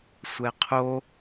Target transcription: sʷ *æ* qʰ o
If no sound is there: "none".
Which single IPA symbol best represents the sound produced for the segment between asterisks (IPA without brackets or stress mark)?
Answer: ɛ